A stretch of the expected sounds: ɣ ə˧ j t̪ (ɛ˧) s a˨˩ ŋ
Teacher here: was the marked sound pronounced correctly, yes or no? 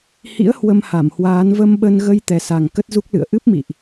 no